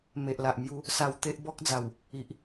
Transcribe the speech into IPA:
m e˨ ʔ l a˨ ʔ m j u˧ | s a˧ w t̪ e˦ ʔ b ɔ˦ k̚ d͡z a˨˩ w | i˨ ʔ

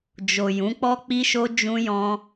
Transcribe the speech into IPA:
d͡ʒ o˨ j ũ˨˦ k͡p ɔ˦ k͡p i˦ ʃ o˦ d͡ʒ ũ˦ j ɔ̃˦

